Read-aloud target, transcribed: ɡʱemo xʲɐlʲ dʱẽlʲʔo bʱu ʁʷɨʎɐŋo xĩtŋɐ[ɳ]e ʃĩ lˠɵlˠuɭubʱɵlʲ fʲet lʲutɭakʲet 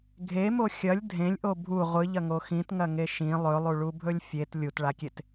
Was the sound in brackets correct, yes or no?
no